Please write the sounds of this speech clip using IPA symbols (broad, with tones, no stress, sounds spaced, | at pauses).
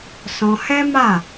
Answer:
s ɔ̃˧ h ɛ˦ m a˦˨